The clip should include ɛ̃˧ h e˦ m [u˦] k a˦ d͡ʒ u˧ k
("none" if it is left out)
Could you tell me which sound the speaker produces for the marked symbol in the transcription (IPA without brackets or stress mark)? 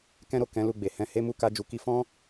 u˦